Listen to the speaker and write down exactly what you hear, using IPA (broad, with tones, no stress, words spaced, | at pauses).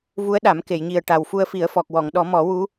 vu˧˥ə̯ɗa˨˩˦m ke˨˩˨jɲi˨˩ə̯ʈa˨˩w fu˧ə̯fi˨˩˦ə̯ fɔ˨˩k̚wɔ˨˩˨ŋ ɗɔ˨˩˦mɔ˨˩˦wu˧˥